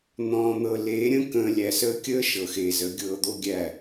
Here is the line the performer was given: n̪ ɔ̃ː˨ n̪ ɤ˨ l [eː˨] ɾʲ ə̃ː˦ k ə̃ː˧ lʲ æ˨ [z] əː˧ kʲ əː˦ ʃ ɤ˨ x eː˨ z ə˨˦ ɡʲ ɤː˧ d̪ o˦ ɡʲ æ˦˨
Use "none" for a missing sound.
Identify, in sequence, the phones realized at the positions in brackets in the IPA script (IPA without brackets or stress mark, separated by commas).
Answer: eː˨˦, s